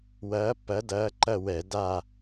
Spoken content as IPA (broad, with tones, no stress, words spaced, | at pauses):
wɐː˧˥pːɐ˧˥dɐː˧˥ ǃɐ˥˧wɛ˧˩˧da˥˧